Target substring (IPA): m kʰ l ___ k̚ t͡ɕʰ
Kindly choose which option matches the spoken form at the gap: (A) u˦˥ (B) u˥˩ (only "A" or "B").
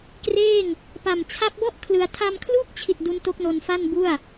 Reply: B